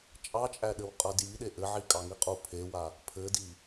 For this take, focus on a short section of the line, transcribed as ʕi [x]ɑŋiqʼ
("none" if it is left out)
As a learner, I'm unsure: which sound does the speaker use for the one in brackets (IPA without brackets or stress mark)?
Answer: kʼ